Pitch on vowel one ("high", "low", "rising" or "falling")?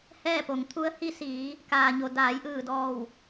falling